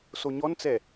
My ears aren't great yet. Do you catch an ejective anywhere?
no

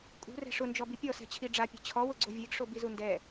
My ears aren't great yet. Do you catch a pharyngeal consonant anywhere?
no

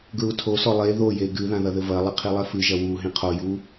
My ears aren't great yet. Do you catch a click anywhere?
no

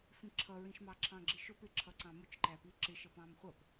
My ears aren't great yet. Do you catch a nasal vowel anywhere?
yes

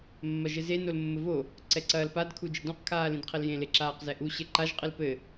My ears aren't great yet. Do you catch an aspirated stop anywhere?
yes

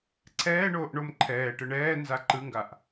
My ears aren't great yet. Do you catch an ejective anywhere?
no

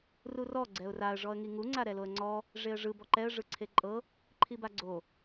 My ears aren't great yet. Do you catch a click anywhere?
yes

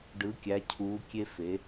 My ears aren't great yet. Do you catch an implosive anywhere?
no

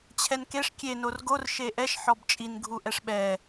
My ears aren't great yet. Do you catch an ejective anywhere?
yes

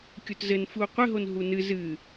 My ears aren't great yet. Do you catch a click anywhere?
no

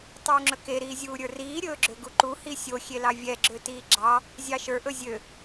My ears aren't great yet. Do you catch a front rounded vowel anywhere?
yes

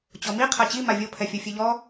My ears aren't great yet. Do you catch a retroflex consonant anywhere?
no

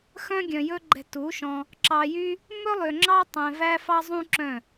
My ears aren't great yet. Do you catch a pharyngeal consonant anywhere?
no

